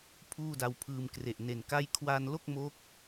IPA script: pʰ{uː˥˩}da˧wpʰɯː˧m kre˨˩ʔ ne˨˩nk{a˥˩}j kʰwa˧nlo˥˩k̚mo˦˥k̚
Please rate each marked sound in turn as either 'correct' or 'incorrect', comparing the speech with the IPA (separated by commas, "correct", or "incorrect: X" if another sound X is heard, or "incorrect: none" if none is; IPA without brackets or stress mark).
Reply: correct, correct